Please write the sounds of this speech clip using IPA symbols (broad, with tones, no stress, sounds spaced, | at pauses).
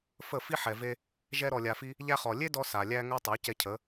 f ə˦˨ f i˦ ħ ɛ˨ v e˧ | ʒ ɛ˧ ɾ ɔ˨ lʲ a˨ f i˧ | ʎ æ˧ χ ɔ˨ lʲ e˦ d ɔ˧ s a˨ lʲ æ˧ ŋ ɛ˧ tˤ ɜ˨˦ c ɛ˧ cʰ ə˨˦